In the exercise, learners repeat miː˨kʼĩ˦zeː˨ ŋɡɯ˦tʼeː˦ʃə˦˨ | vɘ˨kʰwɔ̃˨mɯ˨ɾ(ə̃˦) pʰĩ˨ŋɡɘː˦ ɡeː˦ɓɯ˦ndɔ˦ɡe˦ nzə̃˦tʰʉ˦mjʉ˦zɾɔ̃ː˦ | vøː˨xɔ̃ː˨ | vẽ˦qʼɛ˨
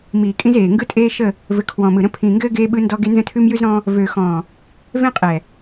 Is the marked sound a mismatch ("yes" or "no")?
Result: no